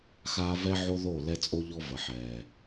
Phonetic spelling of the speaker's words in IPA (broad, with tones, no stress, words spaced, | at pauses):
xaː˦ vɛ˦ʕo˦ ðo˦˨ lɛ˦t͡sʼo˦ʎɔ˦ və˨ħɛː˨